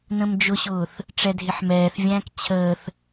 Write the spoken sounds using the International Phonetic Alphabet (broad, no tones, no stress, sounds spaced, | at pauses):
n ə̃ m d͡ʒ ʊ ɕ ʊː θ | ʈ͡ʂ ɛ dʱ ɪ ħ m ɛː θ vʲ æ̃ː k t͡ɕʰ əː θ